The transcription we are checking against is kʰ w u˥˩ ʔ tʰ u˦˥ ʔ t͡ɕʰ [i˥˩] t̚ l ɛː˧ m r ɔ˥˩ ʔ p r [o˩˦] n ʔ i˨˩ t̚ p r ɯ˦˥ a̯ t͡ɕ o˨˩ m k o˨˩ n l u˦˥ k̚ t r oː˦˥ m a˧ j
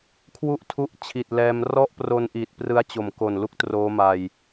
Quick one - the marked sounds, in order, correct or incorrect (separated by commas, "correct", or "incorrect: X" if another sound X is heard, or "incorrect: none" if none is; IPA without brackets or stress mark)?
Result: incorrect: i˨˩, incorrect: o˧